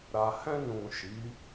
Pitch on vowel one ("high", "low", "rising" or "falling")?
low